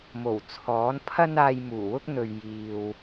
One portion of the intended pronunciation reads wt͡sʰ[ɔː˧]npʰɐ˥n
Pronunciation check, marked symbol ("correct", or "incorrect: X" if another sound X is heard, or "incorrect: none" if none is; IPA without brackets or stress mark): incorrect: ɔː˨˥